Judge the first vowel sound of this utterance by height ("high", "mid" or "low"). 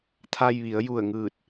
low